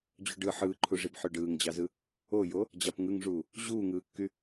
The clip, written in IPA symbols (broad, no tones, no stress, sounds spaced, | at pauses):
d͡ʑ u ɖ ɯ ħ ɯː ǃʰ u ʐ i b ħ ø ɖ ɯː ŋ d͡ʑ ɑ z ɯ | o j o | d͡ʑ ɑ p ŋ ɯ ŋ ʐ uː | ʑ uː ŋ ɯː kː y